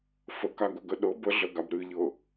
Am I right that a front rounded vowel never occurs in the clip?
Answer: yes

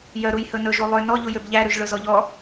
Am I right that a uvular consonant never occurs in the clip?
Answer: yes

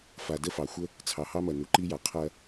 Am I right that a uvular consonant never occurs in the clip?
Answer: no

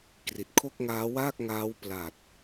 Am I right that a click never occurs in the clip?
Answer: yes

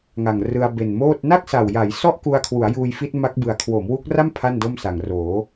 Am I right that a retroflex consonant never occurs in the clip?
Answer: yes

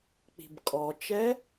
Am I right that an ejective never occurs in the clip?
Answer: no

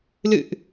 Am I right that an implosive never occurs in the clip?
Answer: yes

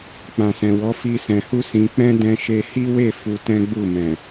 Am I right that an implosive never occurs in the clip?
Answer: yes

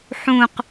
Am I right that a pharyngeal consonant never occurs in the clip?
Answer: no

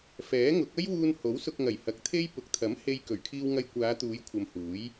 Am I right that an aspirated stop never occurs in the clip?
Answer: no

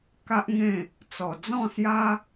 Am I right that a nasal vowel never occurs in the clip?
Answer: no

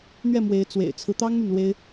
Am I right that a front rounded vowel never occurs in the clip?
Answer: no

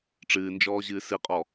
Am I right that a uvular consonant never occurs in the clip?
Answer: no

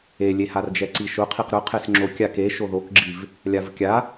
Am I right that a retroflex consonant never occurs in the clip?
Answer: yes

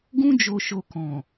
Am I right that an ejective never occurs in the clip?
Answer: yes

